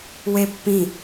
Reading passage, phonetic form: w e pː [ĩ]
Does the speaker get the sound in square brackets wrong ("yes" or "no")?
no